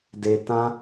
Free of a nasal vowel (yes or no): no